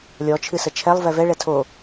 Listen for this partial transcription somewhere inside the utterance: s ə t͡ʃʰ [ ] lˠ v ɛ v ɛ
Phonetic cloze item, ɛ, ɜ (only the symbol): ɛ